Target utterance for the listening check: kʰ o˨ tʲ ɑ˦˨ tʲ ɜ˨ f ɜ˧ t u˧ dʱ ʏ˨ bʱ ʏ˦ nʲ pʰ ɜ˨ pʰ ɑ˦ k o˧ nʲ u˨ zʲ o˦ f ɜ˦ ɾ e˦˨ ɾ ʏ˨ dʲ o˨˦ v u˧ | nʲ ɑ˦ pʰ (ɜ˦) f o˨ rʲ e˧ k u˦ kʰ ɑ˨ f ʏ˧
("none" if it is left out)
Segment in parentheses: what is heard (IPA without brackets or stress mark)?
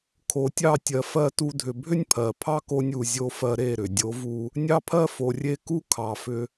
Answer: ɜ˦